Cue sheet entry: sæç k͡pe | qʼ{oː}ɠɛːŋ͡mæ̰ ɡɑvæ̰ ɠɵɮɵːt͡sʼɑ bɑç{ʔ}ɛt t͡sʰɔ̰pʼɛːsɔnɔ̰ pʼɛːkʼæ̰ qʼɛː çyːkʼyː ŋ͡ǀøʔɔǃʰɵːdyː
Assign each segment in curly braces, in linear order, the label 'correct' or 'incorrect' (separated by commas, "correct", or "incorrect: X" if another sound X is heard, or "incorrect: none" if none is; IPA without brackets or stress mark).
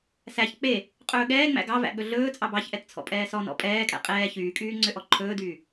incorrect: ɵː, correct